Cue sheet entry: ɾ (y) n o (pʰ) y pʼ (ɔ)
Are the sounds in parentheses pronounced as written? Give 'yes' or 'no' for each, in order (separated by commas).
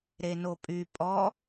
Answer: no, no, yes